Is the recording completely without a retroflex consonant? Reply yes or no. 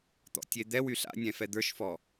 yes